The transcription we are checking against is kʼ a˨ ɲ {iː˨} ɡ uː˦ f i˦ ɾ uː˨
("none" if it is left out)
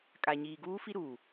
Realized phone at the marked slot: iː˨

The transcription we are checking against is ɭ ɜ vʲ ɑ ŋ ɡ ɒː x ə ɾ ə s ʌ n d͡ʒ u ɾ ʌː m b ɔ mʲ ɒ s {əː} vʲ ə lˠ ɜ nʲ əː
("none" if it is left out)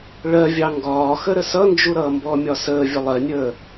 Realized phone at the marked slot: əː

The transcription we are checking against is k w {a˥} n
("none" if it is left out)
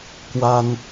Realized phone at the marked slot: a˥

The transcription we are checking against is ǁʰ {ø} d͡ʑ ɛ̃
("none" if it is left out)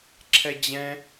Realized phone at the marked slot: ɛ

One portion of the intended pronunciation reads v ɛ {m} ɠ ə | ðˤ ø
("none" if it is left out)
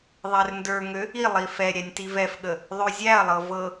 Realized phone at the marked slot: f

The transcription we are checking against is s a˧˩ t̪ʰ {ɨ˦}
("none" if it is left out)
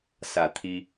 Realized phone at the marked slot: i˦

